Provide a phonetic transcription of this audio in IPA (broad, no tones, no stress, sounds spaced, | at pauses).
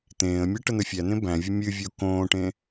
t̪ ẽː ə̯ mʲ ɨ ʈ ə n̪ ə fʲ æ n̪ ẽ b æ̃ vʲ ə mʲ ɨ vʲ o k õː ʈ ẽ